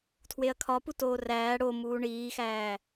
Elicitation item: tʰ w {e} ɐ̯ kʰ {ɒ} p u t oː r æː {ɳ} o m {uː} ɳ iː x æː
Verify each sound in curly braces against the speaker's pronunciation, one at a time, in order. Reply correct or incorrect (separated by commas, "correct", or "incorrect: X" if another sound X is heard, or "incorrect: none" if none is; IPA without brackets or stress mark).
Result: correct, correct, incorrect: ɽ, correct